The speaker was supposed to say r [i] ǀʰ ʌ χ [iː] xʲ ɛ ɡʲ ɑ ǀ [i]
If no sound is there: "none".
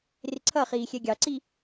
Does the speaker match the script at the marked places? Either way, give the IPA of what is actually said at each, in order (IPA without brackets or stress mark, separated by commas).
ɪ, iː, i